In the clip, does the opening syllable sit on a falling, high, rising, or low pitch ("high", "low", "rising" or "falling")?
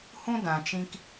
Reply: high